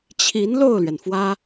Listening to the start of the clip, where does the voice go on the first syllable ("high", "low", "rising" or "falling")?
rising